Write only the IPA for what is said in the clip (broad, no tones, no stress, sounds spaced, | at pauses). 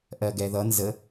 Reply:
ʔ ɜ ɡ ɛ ð ʌ n z ə